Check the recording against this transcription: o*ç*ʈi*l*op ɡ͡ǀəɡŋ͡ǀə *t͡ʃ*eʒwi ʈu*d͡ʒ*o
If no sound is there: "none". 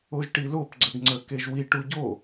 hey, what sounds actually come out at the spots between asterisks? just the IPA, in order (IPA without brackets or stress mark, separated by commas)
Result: ʒ, l, k, ɟ